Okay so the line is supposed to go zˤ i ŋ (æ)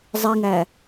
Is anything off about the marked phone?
no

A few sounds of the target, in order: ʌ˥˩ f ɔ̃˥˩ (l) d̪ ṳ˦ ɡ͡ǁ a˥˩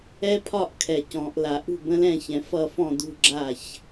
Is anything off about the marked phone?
yes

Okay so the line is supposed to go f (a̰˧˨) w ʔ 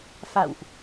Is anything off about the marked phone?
no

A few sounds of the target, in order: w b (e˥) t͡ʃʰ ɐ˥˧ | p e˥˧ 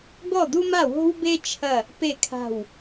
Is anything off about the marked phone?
no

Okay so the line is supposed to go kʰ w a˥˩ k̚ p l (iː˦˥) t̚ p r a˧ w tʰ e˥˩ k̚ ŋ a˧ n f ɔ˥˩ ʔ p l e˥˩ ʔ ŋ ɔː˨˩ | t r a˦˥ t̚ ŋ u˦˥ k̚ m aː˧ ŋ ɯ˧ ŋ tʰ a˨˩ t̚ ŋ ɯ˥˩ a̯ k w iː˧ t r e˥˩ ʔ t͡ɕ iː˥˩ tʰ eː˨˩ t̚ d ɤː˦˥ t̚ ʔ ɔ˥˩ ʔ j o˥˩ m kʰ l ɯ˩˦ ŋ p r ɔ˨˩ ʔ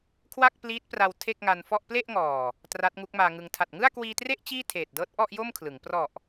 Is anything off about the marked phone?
no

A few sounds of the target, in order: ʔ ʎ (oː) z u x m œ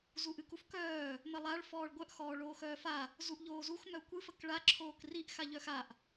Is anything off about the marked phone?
no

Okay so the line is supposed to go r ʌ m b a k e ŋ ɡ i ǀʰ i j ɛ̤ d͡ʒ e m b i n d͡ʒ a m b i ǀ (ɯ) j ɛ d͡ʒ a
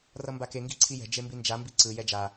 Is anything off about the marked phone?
no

